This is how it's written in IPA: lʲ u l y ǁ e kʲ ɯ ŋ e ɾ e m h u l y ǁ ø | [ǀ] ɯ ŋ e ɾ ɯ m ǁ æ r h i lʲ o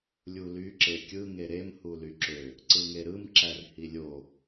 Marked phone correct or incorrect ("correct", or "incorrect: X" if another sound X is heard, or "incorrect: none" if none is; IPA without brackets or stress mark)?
correct